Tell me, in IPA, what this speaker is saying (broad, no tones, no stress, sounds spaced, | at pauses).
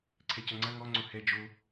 ǀʰ ɛ c ɐ ŋ͡ǀ ɐ ŋ ɔ ŋ͡ǀ o h ɛ d͡ʒ o